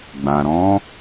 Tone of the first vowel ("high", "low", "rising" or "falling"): low